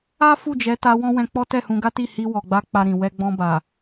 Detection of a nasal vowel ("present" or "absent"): present